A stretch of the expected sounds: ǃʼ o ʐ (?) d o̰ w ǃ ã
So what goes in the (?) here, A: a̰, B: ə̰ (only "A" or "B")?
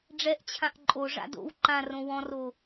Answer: A